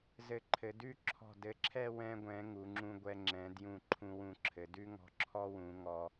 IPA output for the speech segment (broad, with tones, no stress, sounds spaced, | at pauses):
z ɘ˧ ǃʰ ɘ˩˧ d ʉ˥˧ ǁʰ ɔ̤˧˩ d ɘ˧ ǁʰ ɛ˥˧ w ɛ̃˧ ɡʷ ɛ̃˩˧ ŋ u˩˧ ŋ͡ǁ ũ˧ ɡʷ ɛ˧ ŋ͡ǁ ɛ̃˩˧ d j ũ˧˩ ǃʰ ũ˧ w ũ˧˩ ǁʰ ɘ˩˧ d ʉ˥ ŋ ɔ̤˧ ǁʰ ɔ˥ w ũ˩˧ ŋ ɔ˧